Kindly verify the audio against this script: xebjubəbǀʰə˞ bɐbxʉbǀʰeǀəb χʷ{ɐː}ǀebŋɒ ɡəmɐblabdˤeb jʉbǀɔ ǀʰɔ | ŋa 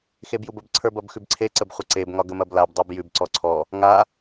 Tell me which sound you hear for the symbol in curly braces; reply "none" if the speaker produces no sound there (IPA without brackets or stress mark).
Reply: ɐ